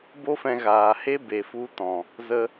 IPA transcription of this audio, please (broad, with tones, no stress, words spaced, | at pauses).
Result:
bo˦fɛ̃˧ɣaː˨he˦ be˨fu˧tɔ̃˨ | zə˧